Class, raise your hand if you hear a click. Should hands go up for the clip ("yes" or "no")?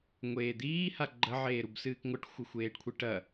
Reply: yes